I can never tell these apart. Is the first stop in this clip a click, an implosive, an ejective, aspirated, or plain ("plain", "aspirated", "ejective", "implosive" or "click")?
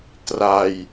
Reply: plain